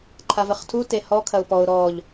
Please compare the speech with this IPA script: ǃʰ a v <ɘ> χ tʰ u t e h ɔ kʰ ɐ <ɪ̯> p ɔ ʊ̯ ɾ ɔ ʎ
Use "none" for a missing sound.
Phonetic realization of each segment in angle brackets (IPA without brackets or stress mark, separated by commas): ɘ, ʊ̯